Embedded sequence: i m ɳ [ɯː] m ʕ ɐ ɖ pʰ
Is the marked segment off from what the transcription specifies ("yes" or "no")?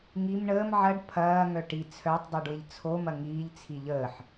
yes